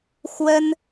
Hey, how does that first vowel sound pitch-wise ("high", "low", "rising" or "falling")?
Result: high